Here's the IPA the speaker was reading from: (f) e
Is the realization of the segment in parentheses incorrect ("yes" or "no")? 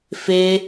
no